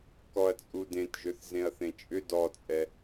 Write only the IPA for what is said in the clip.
k ɔ ɐ̯ t͡sʼ u d ẽ t ʒ ʏ θ z ẽ ɐ̯ θ ẽ t͡ʃʼ ʏ d ɔ t͡sʼ ɛ

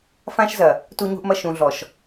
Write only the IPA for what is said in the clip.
f ã˦ ʃ z ɐ˨ | t u˦ ɲ ṳ˦ ʔ m ɐ˦ ʃ ũ˨ ɮ ɔ˨ ʃ

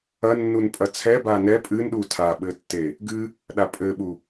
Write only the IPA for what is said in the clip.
ɐ nː u n pʼ ɐ t͡sʰ ɛ b a n ɛ pʼ ɨ n ɗ u tʰ a ɓ ɘ tː e | ɡ ɨ | ɗ a pʼ ɘ ɓ u

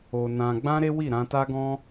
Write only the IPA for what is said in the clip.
o˧ n ã˧ ɡ͡b ã˦ ɾ e˦ w i˦˨ ɾ ã˧ t a˦ ɡ ɔ̃˦

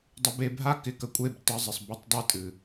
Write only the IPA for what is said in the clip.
dˤ ɪ˧ b e˧ bʱ a˦ k ɪ˨˦ k ə˨ kʷʼ e˦˨ b t ə˧ zˤ ɪ˨ sˤ b ə˦ tˤ dˤ ɨ˦ tʼ ɨ˨

